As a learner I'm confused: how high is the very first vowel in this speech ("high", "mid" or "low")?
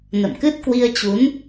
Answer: mid